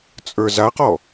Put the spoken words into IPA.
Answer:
t͡sʼ ə˞ z a q ɔ

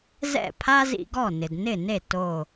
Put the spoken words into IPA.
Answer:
z ɛ̰˥˩ pʰ a˥ z ḭ˧ ɡ ɔ˥˩ n ɪ˩ d n ɪ˥˩ n e˥˩ t o˧˩

